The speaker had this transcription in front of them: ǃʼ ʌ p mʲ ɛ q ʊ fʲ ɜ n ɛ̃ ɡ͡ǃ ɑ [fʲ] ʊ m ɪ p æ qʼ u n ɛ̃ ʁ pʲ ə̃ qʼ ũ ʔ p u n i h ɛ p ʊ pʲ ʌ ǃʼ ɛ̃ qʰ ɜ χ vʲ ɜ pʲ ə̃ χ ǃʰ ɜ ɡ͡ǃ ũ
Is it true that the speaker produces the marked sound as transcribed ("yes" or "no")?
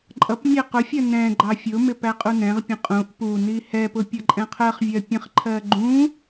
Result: yes